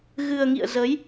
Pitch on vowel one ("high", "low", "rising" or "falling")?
low